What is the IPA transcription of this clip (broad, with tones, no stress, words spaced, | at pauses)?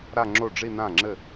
ɾa˥˧ŋ͡ǁo˥˩ɖ͡ʐi˥˧ nã˥˩ŋ͡ǁɘ˥˩